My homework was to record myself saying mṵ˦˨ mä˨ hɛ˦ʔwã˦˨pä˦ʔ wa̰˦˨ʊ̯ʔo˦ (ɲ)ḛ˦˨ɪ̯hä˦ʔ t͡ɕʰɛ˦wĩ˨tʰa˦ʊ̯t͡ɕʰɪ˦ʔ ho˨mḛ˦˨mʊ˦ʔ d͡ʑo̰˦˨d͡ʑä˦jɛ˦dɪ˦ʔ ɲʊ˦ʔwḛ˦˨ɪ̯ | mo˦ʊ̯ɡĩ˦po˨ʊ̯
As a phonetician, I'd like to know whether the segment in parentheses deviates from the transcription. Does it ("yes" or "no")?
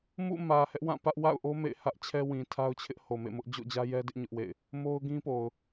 yes